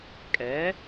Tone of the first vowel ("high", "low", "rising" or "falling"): rising